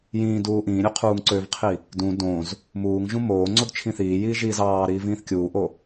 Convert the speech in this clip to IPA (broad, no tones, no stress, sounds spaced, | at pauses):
j ĩː d uː ʔ ĩː ɾʲ ø qʰ uː ŋ ǀ ø v qʰ i | d ũ d õ z | m uː ŋ ʒ ũ m oː ŋ͡ǀ o d t͡ʃʰ ĩ θ iː j iː ʒ iː z ɑː ɾ iː v ĩː θ kʲ uː ʔ o